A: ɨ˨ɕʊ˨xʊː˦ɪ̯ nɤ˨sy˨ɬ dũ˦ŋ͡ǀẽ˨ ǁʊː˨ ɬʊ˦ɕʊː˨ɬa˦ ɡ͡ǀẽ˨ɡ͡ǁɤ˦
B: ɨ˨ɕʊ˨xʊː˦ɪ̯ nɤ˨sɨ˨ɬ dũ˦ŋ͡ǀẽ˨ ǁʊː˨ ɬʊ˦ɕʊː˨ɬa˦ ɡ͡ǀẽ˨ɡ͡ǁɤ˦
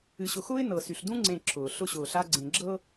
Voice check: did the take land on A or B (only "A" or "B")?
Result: A